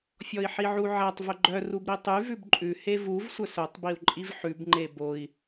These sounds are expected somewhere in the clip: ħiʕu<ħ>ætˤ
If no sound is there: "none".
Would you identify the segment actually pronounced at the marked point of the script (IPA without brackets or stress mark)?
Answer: ʕ